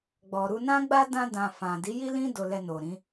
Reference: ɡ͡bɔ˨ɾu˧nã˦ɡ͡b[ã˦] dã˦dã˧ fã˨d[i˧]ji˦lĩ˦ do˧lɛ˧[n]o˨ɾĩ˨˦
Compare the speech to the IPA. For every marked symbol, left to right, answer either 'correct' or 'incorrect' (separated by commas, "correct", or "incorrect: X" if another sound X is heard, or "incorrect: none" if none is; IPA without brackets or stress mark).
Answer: incorrect: a˦, incorrect: i˨˦, correct